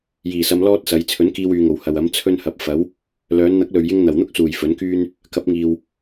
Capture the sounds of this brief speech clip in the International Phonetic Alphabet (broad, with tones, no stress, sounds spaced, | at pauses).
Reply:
j iː˨˩ s ɐ˧ m l ɔː˥ t̚ s ɐ˨˧ j t͡sʰ ɵ˨˥ n k iː˧ w yː˨ ŋ o˨˩ w h ɐ˨ w ɐ˨˥ m t͡sʰ ɵ˥ n h ɐ˨˥ p̚ f ɐ˨˥ w | l œː˨˧ n n̪ ɐ˨˥ k̚ l ɵ˨ ɥ j ɪ˧ ŋ n̪ ɐ˨˩ w n̪ ʊ˥ k̚ s uː˨˩ j f ɵ˨˥ n k yː˥ n | k ɐ˨˥ p̚ ŋ iː˨ w